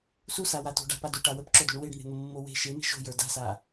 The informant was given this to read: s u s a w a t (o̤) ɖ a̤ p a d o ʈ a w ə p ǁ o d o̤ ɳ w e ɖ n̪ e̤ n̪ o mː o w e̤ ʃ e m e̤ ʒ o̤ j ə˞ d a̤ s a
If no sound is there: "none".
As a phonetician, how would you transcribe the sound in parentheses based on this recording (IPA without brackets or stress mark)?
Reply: o̤